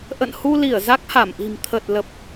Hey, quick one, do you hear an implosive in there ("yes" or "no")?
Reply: no